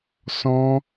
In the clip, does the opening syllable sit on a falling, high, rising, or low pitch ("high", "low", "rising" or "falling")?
high